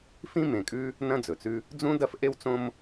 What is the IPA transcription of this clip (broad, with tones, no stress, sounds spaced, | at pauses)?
f ĩ˥ m ẽ˩ kʼ ʉ˥ | n ɐ̃˥ d͡z ɵ˩ t͡s ʉ˥ | d͡z ũ˥ d ɐ˥ f ʔ e˥ w t͡s õ˥ m